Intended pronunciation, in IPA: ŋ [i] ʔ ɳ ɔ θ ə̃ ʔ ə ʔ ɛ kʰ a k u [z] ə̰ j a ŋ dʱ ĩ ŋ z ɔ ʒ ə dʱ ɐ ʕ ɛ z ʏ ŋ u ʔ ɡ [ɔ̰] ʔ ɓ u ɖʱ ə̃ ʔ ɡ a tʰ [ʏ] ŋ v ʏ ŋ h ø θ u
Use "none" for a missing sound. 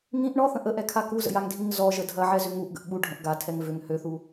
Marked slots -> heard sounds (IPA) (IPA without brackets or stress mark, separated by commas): ĩ, z, ə̰, ɛ